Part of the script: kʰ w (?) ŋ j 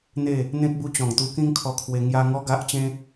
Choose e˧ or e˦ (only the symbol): e˧